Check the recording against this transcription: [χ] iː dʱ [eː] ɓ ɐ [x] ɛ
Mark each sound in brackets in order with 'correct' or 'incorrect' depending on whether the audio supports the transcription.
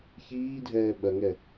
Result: incorrect: ç, incorrect: ɛː, incorrect: ŋ

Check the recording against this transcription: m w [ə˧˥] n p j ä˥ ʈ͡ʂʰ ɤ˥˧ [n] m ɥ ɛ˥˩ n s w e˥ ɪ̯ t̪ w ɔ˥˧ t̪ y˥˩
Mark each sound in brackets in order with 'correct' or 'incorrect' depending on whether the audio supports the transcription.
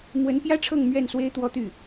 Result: correct, incorrect: ŋ

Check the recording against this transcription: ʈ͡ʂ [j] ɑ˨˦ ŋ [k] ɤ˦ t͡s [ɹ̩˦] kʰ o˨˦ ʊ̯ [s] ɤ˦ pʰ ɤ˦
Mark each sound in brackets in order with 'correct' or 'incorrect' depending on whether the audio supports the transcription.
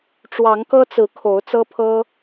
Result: incorrect: w, correct, incorrect: ɹ̩˨˦, incorrect: t͡s

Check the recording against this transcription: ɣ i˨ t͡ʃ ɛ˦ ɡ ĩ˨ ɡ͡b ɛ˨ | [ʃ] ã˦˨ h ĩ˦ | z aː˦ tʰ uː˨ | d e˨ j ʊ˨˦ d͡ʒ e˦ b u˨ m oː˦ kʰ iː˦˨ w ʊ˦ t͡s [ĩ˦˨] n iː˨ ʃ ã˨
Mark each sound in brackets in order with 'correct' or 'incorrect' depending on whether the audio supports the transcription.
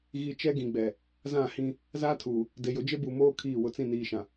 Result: incorrect: z, correct

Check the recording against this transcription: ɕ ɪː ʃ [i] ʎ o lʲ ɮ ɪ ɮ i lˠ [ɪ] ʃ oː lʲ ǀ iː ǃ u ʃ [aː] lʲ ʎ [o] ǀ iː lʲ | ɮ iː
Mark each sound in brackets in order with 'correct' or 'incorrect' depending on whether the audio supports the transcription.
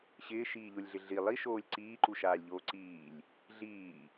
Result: incorrect: iː, incorrect: i, correct, incorrect: oː

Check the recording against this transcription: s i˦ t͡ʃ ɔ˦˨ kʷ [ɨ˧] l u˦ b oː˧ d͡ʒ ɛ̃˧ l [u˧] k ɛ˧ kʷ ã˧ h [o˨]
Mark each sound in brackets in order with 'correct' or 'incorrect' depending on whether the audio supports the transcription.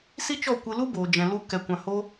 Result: correct, correct, incorrect: o˦

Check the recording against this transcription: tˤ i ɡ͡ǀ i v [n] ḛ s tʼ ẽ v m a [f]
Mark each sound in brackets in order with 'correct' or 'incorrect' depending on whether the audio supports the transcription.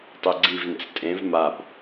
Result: correct, incorrect: b

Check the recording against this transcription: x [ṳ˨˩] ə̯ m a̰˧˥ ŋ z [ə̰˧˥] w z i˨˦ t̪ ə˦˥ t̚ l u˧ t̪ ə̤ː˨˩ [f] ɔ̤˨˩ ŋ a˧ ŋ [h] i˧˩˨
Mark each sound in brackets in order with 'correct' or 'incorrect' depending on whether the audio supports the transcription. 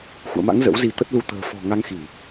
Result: incorrect: ṵ˧˨, correct, correct, incorrect: x

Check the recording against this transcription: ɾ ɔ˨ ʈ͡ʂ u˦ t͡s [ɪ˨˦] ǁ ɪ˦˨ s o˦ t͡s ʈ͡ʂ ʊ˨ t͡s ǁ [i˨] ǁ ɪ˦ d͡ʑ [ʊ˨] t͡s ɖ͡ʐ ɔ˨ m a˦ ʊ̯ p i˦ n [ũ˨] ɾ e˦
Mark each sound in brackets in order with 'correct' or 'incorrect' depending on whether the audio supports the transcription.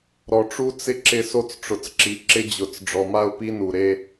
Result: incorrect: ɪ˦, correct, correct, incorrect: u˨

